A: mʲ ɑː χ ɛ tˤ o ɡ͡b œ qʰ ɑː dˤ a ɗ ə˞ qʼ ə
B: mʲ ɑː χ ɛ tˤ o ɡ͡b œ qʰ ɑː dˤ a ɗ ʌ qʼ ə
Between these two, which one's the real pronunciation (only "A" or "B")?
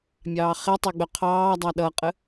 B